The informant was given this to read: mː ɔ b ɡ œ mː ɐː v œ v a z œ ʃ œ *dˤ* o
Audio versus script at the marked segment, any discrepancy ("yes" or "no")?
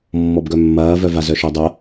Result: no